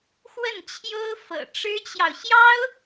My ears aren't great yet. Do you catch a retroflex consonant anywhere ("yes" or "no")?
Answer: yes